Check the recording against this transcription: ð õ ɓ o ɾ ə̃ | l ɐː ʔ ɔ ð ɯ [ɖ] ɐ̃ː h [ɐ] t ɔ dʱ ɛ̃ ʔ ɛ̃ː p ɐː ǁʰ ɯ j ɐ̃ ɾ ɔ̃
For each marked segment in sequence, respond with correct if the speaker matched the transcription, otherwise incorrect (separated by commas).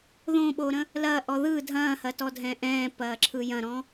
incorrect, correct